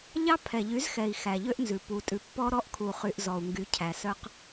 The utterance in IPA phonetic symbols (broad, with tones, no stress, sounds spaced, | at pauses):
ʎ ɑ˦ pʰ ɛ˨ ʎ y˨˦ z x ɛ˨ i̯ x æ˨ ʎ ø˦ ʔ n z ʉ˨ p u˨ tʼ ʉ˨ pː ɔ˦ ɾ ɔ˦ ʔ kʰ u˨ χ y˨ ʔ z ɔ˨ u̯ ŋ ɡ y˨˦ cʰ æ˨ s œ˦ q